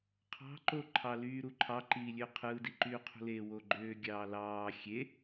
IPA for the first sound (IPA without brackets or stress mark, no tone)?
qʰ